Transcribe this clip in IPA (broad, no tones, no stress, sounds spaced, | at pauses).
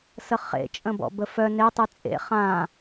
s ə χ ḛ t͡ʃʼ ə̃ b ɔ̰ b ə f œ n e tˤ y t͡sʼ ḛ χ ã